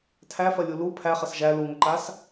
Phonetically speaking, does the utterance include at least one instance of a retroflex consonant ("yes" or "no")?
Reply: no